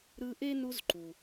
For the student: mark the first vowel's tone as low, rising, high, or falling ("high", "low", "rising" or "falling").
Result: high